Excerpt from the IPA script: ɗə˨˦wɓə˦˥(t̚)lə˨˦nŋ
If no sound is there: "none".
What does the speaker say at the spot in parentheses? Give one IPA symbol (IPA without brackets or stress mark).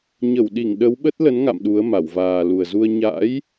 t̚